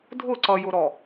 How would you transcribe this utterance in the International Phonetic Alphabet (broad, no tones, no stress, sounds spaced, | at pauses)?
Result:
dʱ ʊ ǀ ʌ j ʊ ɾ ɔ